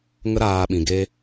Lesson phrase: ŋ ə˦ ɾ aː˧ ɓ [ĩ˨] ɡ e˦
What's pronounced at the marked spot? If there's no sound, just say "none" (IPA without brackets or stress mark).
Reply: ĩ˨